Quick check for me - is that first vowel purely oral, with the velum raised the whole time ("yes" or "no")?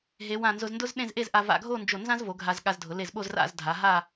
yes